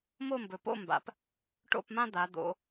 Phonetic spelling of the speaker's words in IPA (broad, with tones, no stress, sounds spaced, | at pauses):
m o˥˨ m b ɵ˨ p o̰˥˨ m b a̰˨ p | ʈ o̰˥˨ p m ã˥ d̪ a˨˦ d̪ o̰˨˦